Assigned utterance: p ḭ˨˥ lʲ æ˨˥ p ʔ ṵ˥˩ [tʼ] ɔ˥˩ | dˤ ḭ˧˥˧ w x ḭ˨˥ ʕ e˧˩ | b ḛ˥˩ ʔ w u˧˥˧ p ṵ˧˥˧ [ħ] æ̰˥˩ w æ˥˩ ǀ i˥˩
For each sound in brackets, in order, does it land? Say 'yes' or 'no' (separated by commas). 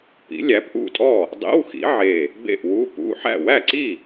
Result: yes, yes